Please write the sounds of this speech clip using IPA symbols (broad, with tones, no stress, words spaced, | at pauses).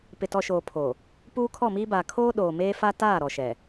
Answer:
pɪ˨tɔ˨ʃoː˨ pʰo˨ | puː˦kʰɔ˦˨miː˦baː˨ kʰoː˦ ɗoː˨meː˦fa˦ taː˦˨ ɾɔ˨ʃɛ˨